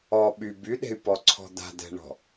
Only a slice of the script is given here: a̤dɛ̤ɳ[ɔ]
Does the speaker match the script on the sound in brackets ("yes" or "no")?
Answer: no